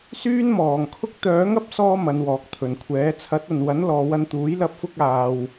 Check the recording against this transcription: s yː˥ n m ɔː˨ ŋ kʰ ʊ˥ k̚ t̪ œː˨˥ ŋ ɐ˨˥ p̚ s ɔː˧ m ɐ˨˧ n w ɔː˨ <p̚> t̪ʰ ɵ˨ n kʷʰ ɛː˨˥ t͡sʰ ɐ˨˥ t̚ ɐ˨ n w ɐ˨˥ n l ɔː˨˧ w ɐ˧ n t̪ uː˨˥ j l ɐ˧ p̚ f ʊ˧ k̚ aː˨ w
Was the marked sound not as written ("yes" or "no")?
yes